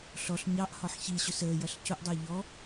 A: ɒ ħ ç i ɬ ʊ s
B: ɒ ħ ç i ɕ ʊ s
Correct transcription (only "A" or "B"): B